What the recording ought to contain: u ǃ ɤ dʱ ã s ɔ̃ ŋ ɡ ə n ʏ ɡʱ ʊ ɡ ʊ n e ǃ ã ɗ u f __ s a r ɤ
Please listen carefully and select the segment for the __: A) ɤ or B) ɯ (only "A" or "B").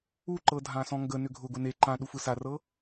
B